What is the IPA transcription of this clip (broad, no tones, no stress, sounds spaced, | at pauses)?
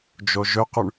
d͡ʒ o ʒ ɵ q ʉ ɳ